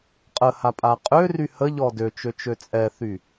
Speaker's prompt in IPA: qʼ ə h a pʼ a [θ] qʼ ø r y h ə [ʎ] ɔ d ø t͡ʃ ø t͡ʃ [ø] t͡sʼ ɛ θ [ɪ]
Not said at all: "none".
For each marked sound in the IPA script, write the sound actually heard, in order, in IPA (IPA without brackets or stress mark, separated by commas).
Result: none, ʎ, ø, y